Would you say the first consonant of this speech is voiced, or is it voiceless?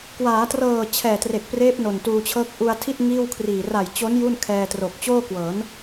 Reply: voiceless